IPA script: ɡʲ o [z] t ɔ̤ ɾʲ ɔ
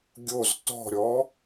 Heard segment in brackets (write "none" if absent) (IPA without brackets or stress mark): z